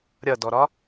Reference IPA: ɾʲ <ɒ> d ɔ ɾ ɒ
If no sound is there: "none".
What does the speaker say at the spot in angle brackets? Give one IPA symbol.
ʌ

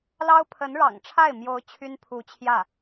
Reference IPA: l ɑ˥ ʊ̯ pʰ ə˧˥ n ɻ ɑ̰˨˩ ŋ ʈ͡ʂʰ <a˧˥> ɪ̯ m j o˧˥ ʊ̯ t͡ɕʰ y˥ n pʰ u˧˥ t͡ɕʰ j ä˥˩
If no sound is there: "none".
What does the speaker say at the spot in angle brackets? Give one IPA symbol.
a˥˩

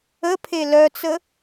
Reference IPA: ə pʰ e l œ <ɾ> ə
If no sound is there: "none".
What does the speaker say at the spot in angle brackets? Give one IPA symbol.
t͡s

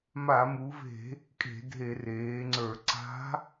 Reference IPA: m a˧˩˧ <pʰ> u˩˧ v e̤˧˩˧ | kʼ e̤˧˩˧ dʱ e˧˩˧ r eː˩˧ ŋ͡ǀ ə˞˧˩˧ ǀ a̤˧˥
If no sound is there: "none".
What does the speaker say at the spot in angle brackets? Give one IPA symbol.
m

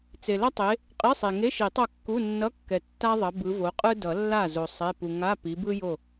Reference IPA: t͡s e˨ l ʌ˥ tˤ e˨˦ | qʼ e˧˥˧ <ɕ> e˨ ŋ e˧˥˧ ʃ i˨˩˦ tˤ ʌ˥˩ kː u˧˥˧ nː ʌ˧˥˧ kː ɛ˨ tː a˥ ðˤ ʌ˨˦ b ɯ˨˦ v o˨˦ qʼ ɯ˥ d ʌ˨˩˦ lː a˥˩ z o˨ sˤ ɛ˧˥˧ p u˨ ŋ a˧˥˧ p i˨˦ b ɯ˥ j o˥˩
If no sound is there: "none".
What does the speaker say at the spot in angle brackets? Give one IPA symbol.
sˤ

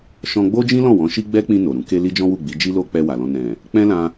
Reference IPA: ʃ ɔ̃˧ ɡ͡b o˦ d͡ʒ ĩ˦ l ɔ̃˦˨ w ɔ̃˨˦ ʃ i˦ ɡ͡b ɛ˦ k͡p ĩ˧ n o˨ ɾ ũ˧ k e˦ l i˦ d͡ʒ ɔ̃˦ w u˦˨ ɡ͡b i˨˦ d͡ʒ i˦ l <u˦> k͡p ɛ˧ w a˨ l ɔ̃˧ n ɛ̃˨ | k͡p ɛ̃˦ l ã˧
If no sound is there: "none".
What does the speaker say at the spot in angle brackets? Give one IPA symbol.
o˦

